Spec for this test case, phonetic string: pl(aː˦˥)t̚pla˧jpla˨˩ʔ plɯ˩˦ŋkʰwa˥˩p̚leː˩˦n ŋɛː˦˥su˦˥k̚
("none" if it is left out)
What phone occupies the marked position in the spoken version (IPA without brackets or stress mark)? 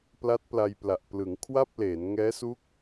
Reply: a˦˥